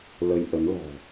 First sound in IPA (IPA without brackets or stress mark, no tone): l